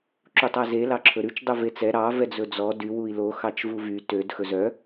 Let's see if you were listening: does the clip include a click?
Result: yes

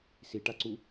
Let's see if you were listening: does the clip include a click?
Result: yes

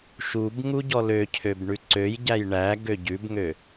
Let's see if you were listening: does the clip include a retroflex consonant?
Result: yes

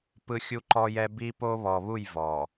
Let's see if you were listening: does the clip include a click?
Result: yes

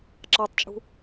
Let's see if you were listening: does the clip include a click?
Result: yes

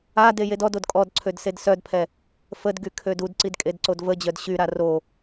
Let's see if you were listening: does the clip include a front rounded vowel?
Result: yes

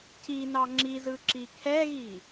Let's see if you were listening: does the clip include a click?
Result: yes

